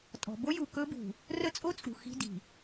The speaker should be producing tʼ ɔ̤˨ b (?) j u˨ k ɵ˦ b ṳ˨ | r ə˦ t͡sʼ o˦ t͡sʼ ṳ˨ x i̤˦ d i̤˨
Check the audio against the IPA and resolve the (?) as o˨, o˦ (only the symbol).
o˦